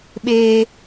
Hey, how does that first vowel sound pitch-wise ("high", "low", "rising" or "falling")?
high